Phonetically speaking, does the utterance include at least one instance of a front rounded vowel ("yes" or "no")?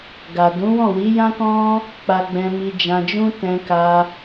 no